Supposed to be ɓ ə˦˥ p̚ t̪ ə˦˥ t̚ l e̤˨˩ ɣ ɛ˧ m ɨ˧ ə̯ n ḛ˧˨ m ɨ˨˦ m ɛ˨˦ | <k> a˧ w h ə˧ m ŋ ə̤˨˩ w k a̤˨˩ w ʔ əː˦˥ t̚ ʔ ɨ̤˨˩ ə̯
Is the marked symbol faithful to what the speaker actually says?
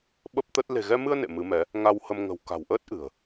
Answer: no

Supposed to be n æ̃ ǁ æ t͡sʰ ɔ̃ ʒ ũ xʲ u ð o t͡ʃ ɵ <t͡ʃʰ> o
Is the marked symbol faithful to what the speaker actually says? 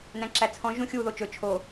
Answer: yes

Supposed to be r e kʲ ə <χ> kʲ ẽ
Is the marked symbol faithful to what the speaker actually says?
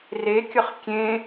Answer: yes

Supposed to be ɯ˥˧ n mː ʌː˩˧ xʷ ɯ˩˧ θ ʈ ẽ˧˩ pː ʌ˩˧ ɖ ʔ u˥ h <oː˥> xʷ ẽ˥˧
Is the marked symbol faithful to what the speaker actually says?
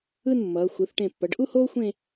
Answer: yes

